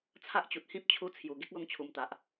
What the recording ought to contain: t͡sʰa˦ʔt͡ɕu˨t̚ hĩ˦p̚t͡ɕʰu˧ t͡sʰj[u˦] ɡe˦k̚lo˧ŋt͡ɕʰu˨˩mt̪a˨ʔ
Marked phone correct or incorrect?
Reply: incorrect